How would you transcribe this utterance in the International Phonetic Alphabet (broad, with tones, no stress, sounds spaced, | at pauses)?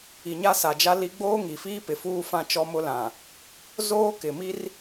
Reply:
i˨ ɲ a˦ s a˨ d͡ʒ a˦ l i˦ ɡ͡b oː˦ ŋ i˨ f iː˦ p ɪ˨ f uː˦ f ã˦ t͡ʃ ɔ˦ m ʊ˦ l ã˨ | z oː˦ k ɪ˨ m i˦ r